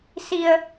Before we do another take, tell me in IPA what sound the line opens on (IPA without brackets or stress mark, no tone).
s